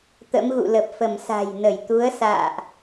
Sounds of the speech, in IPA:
t̪ ə̰˧˥ m ɣ ṵ˧˨ l ə˨˩ p̚ f ə˧˩ m s a̤˨˩ j n ə˧˩ j t̪ u˨˦ ə̯ s a̰ː˧˨ ʔ

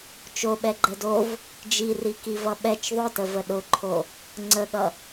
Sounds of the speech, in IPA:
t͡ʃ o ɓ ɛ ɡ͡ǃ ɛ d o v | d͡ʒ i r i k i v ʌ ɓ ɛ t͡ʃ ðˤ ʊ t ə v ə ɗ ʊ ǃʰ o | ŋ͡ǀ ə ɠ ʌ

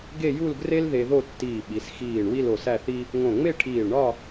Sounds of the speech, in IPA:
ɡ e˥˧ j u˥˧ l ɡ r e˥ l ð e˧ ð o˥˧ tː iː˧˩ ɓ i˩˧ s x iː˧˩ ɳ w i˥˧ l o˧˩ s æ˥˧ θ i˥ | ŋ õ˧˩ ŋ͡m e˥˧ ʈʰ iː˧˩ ɭ ɳ ɒ˥˧

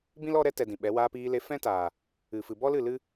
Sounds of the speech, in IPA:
b ĩ˦ l ɔ˧ ɾ ɛ˧ t ɛ˨ d ĩ˨ ɓ ɛ˨˦ w aː˧ p iː˧ l e˧ f ɛ̃˦ t aː˨ | ɨ˨ f ɨ˨ b ɔ˦ l ɨ˦˨ l ɨ˦

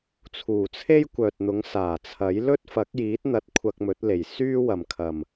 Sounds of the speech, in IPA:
t͡sʰ uː˨˩ t͡sʰ e˥ j kʷ œː˨ t̚ n̪ ʊ˨˥ ŋ s aː˨˩ t͡sʰ ɐ˨˥ j l ɵ˥ t̚ f ɐ˨˥ k̚ j iː˨˥ t̚ n̪ ɐ˨˥ t̚ kʷʰ ɐ˧ k̚ m ɵ˨˥ t̚ l e˨˩ j s yː˥ w ɐ˨ m kʰ ɐ˨ m

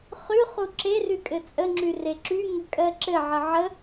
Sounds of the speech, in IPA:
χ y χ u ǁ e r y kʼ ɘ t͡sʼ ə ŋ͡ǁ y r e ǁ y ŋ ɘ kʼ ɜ ǁ ɘ ʕ ə ʕ ə

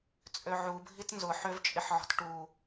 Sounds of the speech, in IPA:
t͡sʼ ø ʕ u bʱ i t n z ʊ ħ ø v t͡ʃʼ ɪ ħ ʕ ɔ̤ t ʈ u

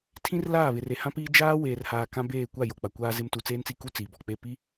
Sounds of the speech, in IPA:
tʰ ĩ˦ r l aː˦˨ β ɪ˨ r e˨ h ã˦ p iː˦ d͡ʒ aː˦ w eː˨ r h aː˨ k ã˦ b eː˦˨ kʷ a˦˨ j o˨ k͡p a˨ kʷ aː˦ z ɪ˦ m t u˨ t͡s eː˦ n t͡s i˦˨ k u˦ t͡s iː˨ b ɔ˨ k͡p e˦˨ p i˦

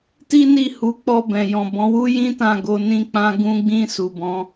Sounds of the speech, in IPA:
t i˦ n i˦˨ h u˨˦ k͡p ɔ˧ b ɛ̃˨ j ɔ̃˨ b ɔ̃˨˦ w u˦ j ĩ˦ t ã˦˨ ɡ o˧ n ĩ˦ k͡p ã˦ ɡ ũ˧ ɡ͡b ĩ˧ s u˨ b ɔ̃˨˦

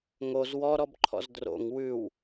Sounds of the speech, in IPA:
ŋ o z w ɔ ɾ ɔ b ǃʰ ɔ̰ z d r o̰ ŋ w ʉ w

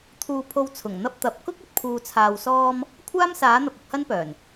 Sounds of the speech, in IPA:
t̪ʰ uː˨ pʰ o˧ w t͡sʰ ʊ˨˩ ŋ n̪ ɐ˧ p̚ t̪ ɐ˨ p̚ k ʊ˥ k̚ ɐ˥ t̚ pʰ uː˧ t͡sʰ aː˧ w s ɔː˧ m | kʷʰ aː˥ m s aː˨˥ n̪ ɐ˧ p̚ ʊ˧ k̚ h ɐ˥ n p œː˨˩ n

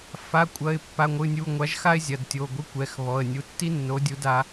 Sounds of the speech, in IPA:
f a˩˧˩ kʷʼ ɐ˩˧˩ ɪ̯ pː a˩˧˩ ŋʷ ɨ˩˧˩ nʲ u˩˧˩ ŋʷ a˨˥ ʒ x a˥ ɪ̯ zʲ ɐ˩˧˩ d tʲ o˩˧˩ ɡʷ e˥ kʷ ɛ˩˧˩ x β ɔ˩˧˩ ə̯ nʲ u˩˧˩ tː i˥ nː o˨˥ dʲ u˨˥ d a˨˥

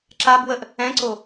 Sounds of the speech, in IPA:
ǁ a b w ə ʔ | ɛ̃ ǀ o

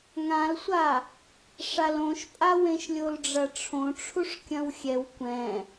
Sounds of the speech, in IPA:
ŋ ã l sʷ a | ʂ a l õ ʃ pʼ a w ẽ ʃ lʲ o l ɖ͡ʐ ɐ ʈ͡ʂʰ õ ʈ͡ʂʰ u ʂ kʲ ɐ̃ w xʲ ɛ w kʷ ɛ̃

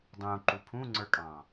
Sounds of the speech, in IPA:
dˤ ũ ǃ u pʰ ũ ŋ͡ǀ ə˞ kʼ ɑ̃

